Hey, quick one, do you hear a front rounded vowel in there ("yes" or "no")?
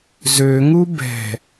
yes